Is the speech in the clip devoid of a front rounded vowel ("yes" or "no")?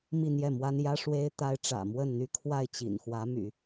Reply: no